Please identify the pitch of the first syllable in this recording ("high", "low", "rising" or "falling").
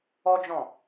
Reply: high